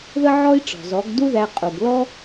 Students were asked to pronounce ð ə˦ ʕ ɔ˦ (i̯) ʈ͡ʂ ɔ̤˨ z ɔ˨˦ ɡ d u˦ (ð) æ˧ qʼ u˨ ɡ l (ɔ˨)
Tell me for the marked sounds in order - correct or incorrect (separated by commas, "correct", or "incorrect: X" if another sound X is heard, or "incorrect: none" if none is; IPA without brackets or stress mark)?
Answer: correct, correct, incorrect: ɔ˦